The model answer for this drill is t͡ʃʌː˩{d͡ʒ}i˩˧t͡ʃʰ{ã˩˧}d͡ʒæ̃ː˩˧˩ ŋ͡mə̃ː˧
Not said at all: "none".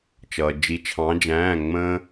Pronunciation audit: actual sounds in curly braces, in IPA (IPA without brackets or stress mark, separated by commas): d͡ʒ, ɑ̃˩˧